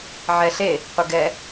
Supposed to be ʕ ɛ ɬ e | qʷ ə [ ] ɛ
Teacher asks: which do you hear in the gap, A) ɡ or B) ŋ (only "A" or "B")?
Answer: A